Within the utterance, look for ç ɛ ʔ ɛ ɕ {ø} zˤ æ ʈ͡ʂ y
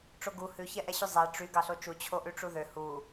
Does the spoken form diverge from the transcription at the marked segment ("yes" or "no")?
yes